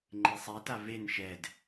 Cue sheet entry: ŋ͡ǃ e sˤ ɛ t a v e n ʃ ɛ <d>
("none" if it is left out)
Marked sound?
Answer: d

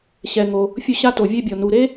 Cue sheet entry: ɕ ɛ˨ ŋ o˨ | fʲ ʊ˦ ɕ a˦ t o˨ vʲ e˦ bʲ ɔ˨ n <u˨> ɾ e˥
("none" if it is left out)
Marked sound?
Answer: u˨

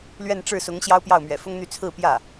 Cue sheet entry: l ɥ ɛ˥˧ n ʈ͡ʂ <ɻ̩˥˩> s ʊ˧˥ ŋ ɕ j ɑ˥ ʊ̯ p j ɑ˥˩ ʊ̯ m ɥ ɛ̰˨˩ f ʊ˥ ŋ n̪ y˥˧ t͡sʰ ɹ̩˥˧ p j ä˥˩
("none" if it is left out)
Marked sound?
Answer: ɻ̩˥˩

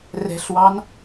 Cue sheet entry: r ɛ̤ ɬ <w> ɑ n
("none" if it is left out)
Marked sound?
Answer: w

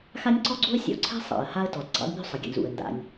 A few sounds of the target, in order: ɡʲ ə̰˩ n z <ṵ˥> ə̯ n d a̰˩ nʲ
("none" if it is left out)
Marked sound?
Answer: ṵ˩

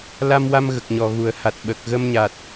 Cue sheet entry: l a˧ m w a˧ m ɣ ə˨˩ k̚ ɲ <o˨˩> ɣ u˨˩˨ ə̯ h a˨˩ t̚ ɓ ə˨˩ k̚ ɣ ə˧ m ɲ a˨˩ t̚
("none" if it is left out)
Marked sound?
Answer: ɔ˨˩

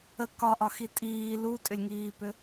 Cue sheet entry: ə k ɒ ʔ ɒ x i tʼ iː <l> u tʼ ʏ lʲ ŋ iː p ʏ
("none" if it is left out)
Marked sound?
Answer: l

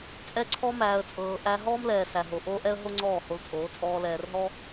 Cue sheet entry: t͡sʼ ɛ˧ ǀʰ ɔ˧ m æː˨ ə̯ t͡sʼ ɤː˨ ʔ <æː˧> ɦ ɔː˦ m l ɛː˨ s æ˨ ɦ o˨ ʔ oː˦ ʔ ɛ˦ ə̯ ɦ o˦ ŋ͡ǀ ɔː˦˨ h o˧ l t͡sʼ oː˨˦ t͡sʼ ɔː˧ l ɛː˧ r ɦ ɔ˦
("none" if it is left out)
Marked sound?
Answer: æ˧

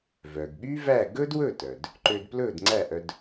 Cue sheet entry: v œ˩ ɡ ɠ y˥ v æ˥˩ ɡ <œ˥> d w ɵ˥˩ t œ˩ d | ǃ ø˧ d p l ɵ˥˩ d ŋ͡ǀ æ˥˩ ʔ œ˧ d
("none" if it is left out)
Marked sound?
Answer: ɵ˥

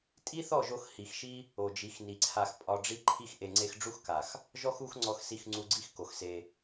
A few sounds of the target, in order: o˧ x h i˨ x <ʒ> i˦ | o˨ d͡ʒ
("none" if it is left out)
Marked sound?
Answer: ʃ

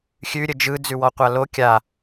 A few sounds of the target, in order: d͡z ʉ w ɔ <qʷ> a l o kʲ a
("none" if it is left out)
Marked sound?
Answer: qʷ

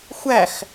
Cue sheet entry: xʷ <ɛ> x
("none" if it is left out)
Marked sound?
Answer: æ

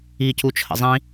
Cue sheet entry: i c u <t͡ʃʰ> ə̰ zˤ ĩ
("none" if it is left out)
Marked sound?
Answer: t͡ʃʰ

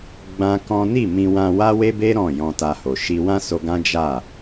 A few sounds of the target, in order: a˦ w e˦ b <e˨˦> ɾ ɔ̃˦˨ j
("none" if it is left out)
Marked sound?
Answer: e˦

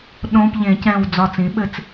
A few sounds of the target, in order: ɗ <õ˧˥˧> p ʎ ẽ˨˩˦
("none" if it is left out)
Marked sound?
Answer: õ˧˥˧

